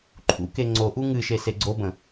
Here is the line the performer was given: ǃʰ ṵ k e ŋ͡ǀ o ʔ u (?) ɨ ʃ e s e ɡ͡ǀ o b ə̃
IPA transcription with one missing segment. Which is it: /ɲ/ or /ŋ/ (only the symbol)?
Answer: ŋ